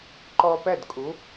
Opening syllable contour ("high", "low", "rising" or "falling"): high